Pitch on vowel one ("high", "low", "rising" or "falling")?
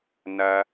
high